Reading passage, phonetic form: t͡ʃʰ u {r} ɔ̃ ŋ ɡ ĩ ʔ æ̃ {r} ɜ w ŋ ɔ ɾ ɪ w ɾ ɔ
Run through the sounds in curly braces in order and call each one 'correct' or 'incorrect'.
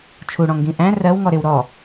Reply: incorrect, correct

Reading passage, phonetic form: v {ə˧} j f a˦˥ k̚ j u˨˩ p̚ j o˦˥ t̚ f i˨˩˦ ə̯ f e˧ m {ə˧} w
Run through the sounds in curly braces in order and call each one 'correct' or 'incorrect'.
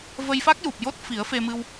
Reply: correct, incorrect

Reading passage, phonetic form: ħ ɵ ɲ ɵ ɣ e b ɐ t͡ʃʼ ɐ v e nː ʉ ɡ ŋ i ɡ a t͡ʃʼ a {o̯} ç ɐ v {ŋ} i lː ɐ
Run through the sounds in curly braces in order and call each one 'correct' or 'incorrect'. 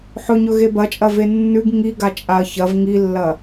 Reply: incorrect, correct

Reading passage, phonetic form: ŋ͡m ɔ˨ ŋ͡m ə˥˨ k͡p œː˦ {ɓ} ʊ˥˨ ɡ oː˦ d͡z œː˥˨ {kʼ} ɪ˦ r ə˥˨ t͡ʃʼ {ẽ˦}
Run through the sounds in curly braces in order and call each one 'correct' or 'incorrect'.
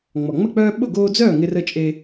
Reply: correct, incorrect, incorrect

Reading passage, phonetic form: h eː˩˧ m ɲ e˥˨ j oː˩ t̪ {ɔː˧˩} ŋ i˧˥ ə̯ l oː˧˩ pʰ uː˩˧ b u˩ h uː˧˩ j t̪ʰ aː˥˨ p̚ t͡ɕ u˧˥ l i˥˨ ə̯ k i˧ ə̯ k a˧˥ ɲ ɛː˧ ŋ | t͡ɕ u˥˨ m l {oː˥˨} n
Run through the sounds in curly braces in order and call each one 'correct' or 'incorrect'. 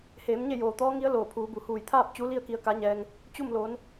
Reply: incorrect, incorrect

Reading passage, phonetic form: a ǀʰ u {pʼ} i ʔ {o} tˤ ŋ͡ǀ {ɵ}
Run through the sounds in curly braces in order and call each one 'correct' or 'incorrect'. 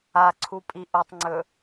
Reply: correct, correct, correct

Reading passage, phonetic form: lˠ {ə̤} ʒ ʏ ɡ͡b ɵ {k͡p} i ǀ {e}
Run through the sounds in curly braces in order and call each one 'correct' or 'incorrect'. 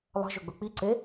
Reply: correct, correct, correct

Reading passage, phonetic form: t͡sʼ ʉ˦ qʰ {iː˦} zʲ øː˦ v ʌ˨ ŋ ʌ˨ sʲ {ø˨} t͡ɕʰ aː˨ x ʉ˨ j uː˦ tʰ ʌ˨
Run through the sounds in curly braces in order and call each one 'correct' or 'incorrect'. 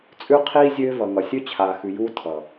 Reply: correct, incorrect

